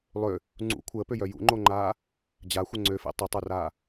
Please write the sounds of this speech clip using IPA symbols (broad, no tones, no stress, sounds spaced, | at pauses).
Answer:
lˠ ø | ŋ͡ǀ ṵ kʷʰ əː p ø j œ j ṵ ŋ͡ǃ o ŋ͡ǃ aː | d͡ʑ a xʷ ə ŋ͡ǀ ø f ḛ tˤ ə tˤ o r aː